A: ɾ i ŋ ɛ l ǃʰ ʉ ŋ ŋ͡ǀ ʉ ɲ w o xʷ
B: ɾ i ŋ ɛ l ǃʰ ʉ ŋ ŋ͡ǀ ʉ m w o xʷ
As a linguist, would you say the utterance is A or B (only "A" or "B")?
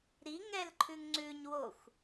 A